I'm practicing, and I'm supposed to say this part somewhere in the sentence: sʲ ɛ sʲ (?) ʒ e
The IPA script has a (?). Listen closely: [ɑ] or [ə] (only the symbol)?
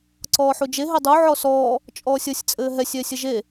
ə